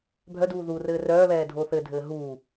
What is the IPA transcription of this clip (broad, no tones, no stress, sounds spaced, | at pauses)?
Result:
bʱ œ d uː ð u r ɘː r œː β ɛː dʱ o θ ɘ dʱ ɘː ɦ uː